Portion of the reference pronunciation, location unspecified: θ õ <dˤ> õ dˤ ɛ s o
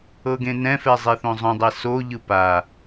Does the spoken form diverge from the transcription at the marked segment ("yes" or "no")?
yes